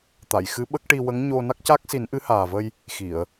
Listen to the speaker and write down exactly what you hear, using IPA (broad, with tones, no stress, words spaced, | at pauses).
t̪a˨˩˨jxɨ˧˥ɓə˦˥k̚ ʈi˧wə˧˥ŋɲo˧ na˦˥k̚ca˦˥k̚si˨˩˦n ʔɨ˧˥haː˨˩və˧j | xi˨˩˨ə̯